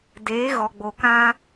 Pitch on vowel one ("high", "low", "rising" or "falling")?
rising